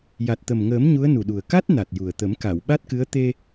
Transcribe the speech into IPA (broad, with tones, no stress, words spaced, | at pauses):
ja˨˩t̚t̪ə˨˩mŋəː˨˩˦m ɲu˧˥ə̯nu˨˩ɗu˨˩ə̯ ka˦˥t̚ na˨˩t̚ju˨˩ə̯t̪ə˨˩˦m ka˨˩˨wɓa˦˥t̚kɨ˧˥ə̯ t̪e˧